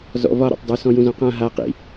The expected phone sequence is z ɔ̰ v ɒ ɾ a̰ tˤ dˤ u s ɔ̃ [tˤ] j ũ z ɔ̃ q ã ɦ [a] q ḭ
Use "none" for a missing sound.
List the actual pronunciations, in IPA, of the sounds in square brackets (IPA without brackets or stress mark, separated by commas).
none, a